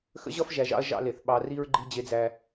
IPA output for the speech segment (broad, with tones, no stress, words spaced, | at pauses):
xə̰˦ʑʌ˦f ʒæ˨ʒɑ̰˦ɐ̯ ʒɑ̰˦le˨θ ɓɑ˨ri˦ɹ ɡ͡ǃi˦d͡ʑe˦d͡zæ˦